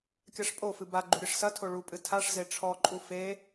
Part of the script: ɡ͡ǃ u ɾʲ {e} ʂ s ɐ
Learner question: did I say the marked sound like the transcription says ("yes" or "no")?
no